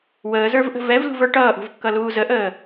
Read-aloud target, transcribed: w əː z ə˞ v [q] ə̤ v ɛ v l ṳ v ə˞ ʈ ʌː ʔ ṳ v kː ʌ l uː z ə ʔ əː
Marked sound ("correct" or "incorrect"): incorrect